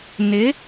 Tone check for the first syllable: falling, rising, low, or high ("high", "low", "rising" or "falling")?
rising